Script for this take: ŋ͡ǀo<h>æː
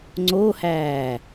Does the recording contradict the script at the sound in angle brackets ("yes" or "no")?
no